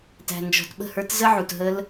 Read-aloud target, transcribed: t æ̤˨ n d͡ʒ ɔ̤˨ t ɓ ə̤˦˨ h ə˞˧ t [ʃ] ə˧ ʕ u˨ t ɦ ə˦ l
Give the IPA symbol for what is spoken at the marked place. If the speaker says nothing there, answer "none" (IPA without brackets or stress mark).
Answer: z